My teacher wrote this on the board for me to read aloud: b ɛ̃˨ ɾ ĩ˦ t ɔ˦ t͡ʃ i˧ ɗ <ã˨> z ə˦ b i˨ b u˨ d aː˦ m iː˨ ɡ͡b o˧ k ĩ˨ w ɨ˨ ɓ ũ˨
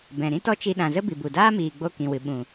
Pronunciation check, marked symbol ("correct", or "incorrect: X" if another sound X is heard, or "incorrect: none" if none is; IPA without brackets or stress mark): correct